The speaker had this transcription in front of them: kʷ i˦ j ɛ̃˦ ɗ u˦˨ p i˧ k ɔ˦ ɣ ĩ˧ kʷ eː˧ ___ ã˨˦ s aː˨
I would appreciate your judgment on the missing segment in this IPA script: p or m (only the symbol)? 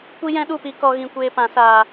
p